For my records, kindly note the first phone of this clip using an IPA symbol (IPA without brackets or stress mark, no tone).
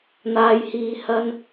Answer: n̪